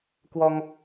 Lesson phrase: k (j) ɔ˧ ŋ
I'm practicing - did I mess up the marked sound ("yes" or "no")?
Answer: yes